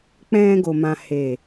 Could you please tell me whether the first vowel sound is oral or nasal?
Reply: nasal